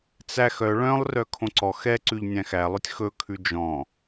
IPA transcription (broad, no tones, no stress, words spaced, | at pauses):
t͡sæx œ ɭœ̃lˠrœ kʰõǀɔ xɛǀʉʎ nʲæ̃xælˠɵtʲ xɵkʰʉ d͡ʒɔ̃